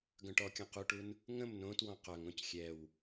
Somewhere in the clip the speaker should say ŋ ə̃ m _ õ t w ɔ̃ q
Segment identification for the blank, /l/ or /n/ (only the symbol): n